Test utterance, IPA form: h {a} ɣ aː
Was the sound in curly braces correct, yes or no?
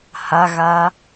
yes